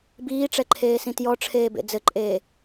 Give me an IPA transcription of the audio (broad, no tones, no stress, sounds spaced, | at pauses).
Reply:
b iː ʈ͡ʂ ɛ ǃʰ eː s ĩ t j ɔ ʈ͡ʂʰ eː b ḛ d͡z ɘ ǃʼ eː